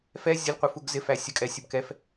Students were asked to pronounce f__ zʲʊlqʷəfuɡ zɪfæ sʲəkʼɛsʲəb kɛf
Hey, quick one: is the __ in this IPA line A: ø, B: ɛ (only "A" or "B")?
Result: B